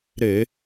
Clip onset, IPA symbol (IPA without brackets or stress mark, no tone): ɾ